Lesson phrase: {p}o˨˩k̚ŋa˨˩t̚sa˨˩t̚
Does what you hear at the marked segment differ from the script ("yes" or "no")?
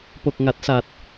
no